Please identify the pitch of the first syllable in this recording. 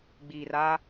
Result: low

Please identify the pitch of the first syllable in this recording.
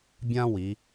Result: high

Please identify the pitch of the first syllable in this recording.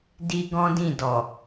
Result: high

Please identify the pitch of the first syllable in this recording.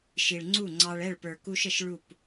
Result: low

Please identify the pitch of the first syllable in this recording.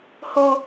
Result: high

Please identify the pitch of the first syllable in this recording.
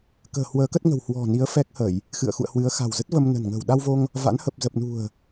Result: low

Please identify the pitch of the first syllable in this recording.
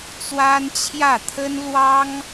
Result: high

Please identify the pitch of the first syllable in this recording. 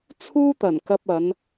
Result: high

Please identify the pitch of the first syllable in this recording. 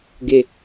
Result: low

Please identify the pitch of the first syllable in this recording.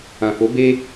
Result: low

